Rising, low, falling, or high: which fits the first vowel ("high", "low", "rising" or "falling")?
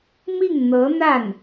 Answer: falling